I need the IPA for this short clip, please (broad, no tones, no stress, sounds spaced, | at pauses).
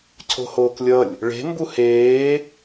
cʰ o̤ h oː k lʲ ʌ lʲ | ɭ e̤ m b u h eː